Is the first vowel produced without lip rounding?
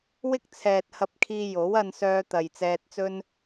yes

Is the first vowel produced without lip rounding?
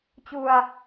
no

